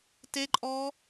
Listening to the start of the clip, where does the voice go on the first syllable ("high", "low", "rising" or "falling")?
high